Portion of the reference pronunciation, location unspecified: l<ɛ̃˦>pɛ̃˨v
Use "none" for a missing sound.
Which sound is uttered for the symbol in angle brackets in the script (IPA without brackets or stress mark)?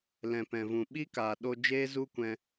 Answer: ɛ̃˨